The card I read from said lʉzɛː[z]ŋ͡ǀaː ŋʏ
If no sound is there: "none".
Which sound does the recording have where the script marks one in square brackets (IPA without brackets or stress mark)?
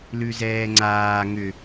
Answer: none